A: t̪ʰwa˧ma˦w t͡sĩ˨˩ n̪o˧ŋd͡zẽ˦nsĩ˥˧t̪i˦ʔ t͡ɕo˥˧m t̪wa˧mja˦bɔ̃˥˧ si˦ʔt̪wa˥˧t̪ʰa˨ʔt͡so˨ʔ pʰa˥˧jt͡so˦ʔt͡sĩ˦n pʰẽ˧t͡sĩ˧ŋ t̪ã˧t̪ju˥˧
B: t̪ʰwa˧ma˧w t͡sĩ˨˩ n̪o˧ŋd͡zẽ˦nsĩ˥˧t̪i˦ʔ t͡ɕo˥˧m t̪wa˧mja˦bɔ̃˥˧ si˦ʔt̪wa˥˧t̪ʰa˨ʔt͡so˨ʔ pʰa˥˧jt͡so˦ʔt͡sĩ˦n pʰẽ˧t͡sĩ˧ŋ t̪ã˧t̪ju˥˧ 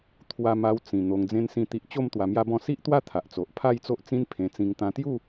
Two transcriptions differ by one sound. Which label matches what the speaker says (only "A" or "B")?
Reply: B